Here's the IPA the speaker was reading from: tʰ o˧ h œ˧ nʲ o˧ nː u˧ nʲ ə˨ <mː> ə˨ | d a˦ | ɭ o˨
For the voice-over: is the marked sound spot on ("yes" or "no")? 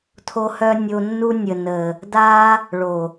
no